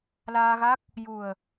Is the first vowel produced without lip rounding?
yes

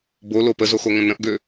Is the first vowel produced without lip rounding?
no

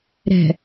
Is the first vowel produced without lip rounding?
yes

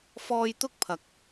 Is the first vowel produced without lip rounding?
no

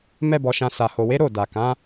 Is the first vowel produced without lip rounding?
yes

